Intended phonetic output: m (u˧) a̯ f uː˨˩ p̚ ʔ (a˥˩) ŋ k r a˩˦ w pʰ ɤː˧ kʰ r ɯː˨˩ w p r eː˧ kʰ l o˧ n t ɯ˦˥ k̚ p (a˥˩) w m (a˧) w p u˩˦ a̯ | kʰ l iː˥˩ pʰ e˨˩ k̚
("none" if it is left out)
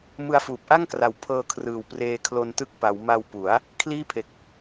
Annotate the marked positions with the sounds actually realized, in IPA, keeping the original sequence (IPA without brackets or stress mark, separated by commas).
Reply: ɯ˧, a˥˩, a˩˦, a˧